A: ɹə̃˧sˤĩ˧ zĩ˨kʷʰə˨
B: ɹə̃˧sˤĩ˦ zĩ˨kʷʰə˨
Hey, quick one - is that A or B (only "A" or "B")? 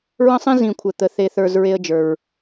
A